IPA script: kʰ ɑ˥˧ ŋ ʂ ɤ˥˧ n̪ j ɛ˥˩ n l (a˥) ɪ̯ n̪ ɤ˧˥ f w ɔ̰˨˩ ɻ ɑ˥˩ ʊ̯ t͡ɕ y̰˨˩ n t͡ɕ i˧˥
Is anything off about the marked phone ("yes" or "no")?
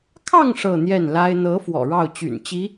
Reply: no